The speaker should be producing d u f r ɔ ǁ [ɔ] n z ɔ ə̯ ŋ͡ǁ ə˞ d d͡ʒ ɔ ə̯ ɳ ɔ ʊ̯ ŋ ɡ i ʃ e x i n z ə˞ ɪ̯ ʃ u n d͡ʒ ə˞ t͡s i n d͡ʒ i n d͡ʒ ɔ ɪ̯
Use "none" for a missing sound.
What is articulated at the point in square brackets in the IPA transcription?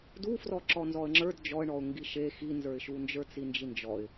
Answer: ɔ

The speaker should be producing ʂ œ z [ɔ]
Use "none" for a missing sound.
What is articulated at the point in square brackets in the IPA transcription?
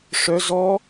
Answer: ɔ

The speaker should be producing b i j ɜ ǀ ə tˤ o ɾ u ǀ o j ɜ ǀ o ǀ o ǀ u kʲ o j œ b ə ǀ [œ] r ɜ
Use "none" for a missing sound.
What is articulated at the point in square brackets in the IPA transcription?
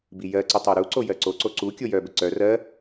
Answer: œ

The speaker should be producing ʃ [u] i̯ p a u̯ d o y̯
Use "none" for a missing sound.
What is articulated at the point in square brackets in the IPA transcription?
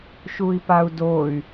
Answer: u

